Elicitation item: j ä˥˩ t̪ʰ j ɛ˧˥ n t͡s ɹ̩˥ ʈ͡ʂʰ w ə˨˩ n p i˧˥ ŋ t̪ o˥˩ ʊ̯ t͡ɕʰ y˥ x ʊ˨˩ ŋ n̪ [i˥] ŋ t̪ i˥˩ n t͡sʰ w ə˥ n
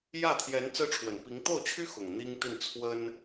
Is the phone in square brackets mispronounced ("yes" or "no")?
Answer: no